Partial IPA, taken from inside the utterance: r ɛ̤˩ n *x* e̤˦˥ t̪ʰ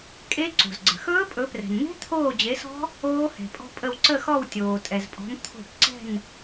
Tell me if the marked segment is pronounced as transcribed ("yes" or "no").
no